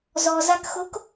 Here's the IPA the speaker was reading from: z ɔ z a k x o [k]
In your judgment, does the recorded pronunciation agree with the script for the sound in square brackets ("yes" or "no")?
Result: yes